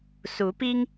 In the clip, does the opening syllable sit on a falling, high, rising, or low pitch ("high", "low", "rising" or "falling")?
rising